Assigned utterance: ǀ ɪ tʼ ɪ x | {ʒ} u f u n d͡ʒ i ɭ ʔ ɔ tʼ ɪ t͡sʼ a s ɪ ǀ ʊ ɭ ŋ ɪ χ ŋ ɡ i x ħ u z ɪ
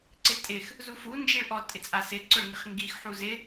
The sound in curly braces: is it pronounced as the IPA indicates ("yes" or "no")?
no